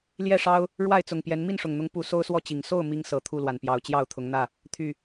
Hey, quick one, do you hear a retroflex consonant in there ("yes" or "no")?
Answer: yes